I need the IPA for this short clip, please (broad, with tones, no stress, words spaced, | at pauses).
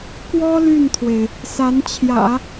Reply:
kwɔ˥ ly˥˩nt̪ʰwe˩ɪ̯ | sa˧˥nt͡ɕʰjä̰˨˩˦